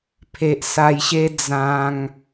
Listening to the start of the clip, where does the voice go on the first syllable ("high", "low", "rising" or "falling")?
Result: low